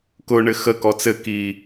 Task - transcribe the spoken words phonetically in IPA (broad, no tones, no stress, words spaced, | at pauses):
kʊɳɘ xəkɔ t͡sɘkiː